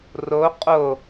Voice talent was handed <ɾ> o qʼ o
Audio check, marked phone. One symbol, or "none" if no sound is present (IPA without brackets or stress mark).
r